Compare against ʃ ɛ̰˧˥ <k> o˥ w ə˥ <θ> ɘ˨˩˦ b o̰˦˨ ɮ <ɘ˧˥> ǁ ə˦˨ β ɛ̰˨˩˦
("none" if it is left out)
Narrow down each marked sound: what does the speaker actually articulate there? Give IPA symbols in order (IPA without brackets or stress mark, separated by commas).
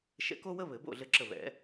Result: k, β, ɘ˦˨